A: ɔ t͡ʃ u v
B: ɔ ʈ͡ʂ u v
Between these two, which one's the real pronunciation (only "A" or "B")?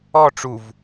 B